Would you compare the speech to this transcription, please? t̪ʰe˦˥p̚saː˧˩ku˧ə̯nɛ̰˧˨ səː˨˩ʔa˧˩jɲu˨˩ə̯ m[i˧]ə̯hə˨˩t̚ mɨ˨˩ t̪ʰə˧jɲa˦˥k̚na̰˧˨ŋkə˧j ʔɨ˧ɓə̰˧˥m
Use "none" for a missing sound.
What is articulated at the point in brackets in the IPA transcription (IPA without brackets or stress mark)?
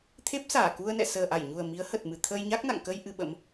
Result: i˨˦